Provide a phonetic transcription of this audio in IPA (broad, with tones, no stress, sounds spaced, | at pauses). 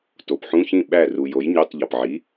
t o˩ p ħ ũ˧˥˧ ç ĩ˥˩ ɓ æ˥˩ r u˩ j o˩˥ j ɲ o˧˥˧ tˤ ʎ ɒ˩ p ʕ i˩˥